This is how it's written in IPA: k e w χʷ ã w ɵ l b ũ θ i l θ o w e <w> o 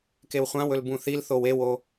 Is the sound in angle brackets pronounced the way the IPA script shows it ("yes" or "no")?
yes